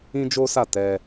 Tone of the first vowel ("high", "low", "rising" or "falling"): high